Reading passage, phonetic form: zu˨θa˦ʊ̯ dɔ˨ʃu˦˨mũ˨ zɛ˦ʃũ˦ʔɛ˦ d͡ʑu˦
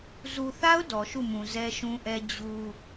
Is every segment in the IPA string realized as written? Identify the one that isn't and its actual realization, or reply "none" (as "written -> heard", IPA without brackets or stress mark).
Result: none